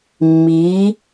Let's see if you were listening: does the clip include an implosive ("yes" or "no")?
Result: no